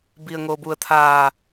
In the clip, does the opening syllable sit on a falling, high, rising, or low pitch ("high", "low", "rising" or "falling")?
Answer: low